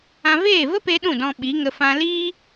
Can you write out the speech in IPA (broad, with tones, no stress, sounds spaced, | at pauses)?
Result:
ã˧ v eː˦˨ v ə˦ p e˧ ɗ ũ˦˨ d ɔ̃˧ ɓ i˨˦ ŋ ə˧ f ã˧ l iː˦